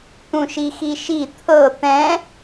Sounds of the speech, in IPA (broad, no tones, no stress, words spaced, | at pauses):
t̪ũʃixiʃi t̪ʰɤ t̪ɛ̃